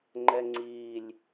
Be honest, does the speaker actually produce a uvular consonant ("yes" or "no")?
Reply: no